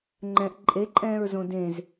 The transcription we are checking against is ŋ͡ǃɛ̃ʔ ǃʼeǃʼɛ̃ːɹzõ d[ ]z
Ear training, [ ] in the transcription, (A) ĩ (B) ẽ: B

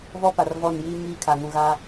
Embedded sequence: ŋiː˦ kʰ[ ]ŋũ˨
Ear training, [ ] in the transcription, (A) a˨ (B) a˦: A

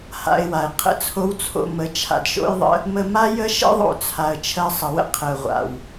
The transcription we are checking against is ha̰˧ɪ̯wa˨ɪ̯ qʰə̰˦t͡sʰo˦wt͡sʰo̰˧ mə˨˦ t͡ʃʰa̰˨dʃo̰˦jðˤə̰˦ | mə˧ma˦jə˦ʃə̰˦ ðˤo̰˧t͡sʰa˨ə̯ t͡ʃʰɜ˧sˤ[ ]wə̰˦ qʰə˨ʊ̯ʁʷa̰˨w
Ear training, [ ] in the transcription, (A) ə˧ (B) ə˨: B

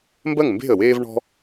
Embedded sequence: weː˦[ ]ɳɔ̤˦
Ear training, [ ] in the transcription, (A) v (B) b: A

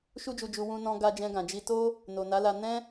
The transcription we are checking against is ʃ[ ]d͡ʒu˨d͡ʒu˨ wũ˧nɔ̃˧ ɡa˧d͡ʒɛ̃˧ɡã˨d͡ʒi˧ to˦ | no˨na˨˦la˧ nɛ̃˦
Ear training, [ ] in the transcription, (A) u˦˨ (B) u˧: B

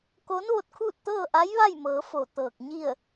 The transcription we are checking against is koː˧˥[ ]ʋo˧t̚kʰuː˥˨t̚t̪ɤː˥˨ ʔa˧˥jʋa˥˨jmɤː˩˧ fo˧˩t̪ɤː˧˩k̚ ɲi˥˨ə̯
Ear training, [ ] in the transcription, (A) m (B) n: B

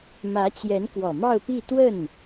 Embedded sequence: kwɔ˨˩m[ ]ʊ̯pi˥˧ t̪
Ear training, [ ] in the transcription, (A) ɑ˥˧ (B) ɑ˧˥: A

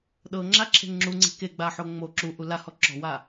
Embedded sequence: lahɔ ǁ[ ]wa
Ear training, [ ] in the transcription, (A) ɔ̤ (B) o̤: A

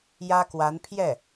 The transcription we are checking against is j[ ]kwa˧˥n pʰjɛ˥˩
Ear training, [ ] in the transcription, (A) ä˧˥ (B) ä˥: B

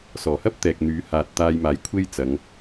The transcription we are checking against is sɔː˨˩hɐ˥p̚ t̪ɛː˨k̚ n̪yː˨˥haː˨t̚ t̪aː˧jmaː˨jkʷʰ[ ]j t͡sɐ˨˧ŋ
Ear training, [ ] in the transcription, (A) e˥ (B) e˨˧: A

